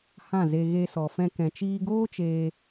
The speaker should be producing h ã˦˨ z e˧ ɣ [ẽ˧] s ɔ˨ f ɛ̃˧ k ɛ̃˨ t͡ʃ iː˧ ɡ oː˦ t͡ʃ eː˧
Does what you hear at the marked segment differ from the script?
yes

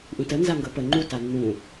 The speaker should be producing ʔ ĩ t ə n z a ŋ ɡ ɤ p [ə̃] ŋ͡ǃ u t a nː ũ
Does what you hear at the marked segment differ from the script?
yes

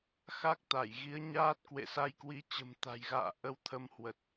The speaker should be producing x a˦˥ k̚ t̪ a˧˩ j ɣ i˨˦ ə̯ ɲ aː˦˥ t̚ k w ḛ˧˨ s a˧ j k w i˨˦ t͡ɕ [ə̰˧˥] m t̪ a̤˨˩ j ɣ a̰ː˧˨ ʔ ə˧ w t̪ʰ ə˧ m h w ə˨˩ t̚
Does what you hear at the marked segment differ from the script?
yes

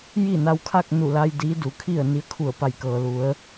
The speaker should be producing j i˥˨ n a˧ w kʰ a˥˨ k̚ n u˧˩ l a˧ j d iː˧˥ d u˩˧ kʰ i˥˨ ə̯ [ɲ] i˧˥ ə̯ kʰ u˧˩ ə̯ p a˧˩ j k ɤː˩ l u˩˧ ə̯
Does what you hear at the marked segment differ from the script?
yes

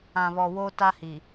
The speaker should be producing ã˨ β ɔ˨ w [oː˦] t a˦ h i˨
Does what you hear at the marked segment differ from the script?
no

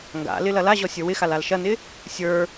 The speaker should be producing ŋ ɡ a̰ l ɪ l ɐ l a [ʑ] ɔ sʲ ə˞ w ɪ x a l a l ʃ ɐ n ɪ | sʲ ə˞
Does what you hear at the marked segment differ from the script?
no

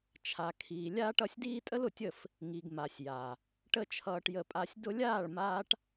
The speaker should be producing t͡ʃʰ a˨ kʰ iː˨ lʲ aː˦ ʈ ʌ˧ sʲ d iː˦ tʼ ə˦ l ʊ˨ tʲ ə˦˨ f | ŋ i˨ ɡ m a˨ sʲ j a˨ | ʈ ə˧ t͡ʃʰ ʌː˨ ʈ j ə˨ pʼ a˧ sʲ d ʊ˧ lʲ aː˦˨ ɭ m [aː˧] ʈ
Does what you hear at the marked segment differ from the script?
yes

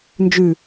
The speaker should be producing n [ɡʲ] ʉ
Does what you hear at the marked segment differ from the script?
yes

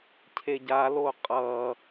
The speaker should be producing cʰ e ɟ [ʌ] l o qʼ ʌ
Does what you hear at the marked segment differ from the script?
yes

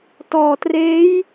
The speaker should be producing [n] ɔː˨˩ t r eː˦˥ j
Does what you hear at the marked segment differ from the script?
yes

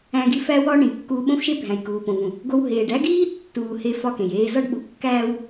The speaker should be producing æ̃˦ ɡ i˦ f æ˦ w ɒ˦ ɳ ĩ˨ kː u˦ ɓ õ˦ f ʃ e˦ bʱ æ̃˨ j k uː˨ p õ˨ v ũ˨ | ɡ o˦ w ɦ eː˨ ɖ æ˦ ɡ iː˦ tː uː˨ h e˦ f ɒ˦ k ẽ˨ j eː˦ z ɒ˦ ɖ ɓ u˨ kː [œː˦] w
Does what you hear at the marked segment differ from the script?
yes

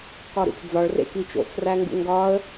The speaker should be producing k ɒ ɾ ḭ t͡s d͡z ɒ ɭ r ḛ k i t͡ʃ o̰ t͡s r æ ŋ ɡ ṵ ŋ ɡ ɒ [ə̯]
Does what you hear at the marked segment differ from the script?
no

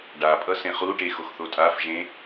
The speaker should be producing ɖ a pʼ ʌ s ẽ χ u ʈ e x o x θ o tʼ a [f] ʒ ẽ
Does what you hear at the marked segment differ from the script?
no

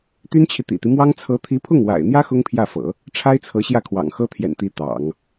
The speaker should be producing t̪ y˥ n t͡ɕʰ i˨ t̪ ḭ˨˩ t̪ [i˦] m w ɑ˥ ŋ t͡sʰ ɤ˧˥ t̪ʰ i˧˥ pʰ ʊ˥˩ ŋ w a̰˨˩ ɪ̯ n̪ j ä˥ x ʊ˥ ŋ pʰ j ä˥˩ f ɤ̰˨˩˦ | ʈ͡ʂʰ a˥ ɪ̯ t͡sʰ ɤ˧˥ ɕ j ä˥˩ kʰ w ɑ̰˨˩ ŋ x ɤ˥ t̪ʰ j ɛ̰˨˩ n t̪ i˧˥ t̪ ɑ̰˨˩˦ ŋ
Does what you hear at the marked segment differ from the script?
no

